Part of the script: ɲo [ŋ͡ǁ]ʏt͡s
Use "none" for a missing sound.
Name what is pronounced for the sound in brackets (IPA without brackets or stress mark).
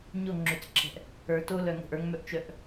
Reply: ŋ͡ǁ